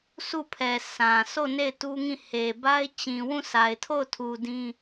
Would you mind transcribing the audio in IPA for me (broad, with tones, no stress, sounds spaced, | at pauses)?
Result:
sʰ u˦˨ pʰ ɛ˨ sʰ ã˨ sʰ o˦˨ n e˦˨ ɪ̯ t u˦ ŋ ĩ˦˨ h e˨ b a˦ ɪ̯ t͡ɕ ĩ˨ w ũ˦˨ s a˨ ɪ̯ tʰ o˦˨ ʊ̯ tʰ u˨ d ĩ˦